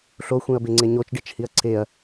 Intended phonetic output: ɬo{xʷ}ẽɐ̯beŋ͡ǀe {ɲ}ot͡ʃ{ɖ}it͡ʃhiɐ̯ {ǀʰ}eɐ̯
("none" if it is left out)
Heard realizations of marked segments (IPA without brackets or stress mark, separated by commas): xʷ, ɲ, ɖ, ǀʰ